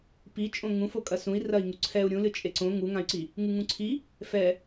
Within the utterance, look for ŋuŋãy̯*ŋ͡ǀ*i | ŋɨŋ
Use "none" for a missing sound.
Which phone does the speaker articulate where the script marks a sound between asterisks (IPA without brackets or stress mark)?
ǀ